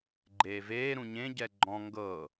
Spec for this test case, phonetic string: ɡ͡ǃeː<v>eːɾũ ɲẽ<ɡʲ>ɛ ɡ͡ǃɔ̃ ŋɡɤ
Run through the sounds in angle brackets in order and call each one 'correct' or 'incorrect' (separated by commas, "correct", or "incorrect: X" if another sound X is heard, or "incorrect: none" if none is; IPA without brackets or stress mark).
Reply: correct, incorrect: ɟ